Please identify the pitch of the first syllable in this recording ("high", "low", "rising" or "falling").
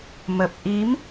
low